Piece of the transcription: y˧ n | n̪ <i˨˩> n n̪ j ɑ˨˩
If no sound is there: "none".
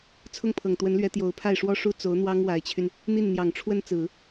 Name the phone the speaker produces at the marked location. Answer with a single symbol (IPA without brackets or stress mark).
i˥˩